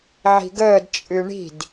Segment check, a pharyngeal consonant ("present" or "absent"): present